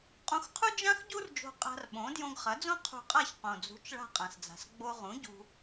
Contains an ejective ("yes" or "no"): yes